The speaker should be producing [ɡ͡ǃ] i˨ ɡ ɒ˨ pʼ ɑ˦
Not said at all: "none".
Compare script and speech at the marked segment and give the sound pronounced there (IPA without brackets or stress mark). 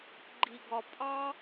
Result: ɡ͡ǃ